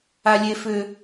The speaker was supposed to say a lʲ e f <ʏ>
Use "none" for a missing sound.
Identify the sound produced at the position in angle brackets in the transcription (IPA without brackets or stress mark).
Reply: ʏ